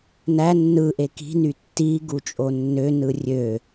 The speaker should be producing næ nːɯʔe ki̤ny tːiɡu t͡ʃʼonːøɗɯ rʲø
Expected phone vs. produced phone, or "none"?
ɗ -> n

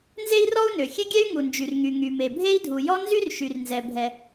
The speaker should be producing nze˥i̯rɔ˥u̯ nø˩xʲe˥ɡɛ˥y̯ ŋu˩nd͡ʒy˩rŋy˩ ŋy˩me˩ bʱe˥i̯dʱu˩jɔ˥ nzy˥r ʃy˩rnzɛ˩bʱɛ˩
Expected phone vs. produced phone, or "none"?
ɡ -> ɡʲ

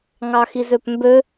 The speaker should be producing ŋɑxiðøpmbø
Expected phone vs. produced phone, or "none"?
ð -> z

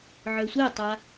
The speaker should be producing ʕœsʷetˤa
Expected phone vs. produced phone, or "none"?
none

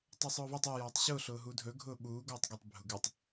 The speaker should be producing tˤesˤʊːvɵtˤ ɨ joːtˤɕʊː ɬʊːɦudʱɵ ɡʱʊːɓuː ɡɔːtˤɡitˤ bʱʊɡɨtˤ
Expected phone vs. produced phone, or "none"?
oː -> ɔː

